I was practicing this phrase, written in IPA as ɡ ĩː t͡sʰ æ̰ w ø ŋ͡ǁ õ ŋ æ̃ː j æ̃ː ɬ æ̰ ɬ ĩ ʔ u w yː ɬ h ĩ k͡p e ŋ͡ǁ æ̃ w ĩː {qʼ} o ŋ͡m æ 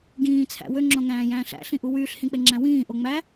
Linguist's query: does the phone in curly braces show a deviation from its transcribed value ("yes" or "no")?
yes